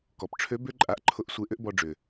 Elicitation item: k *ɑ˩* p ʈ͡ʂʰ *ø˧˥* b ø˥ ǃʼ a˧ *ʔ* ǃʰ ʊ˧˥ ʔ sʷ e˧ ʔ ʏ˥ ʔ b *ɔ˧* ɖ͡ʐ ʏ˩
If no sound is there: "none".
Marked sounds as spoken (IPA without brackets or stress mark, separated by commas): ɔ˩, ø˧˥, ʔ, ɔ˧